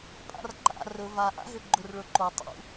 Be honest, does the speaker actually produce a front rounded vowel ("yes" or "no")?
yes